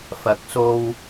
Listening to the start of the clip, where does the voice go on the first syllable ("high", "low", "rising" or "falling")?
rising